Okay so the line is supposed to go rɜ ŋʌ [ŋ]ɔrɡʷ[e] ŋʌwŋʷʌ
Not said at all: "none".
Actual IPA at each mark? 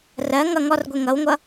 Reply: ŋ, e

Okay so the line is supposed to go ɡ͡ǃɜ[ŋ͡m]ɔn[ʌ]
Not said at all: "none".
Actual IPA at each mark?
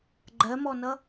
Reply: m, ʌ

